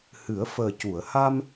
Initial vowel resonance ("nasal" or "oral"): oral